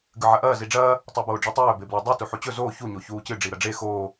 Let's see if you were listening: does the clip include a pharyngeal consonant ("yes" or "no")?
yes